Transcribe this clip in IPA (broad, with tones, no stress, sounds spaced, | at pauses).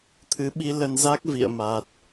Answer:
t̪ʰ ɨ˨˦ ɓ i˧ l ə˧ n z a˦˥ k̚ v ḭ˧˨ ə̯ m a˨˩ t̚